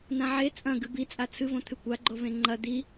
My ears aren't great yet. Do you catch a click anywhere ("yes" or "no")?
yes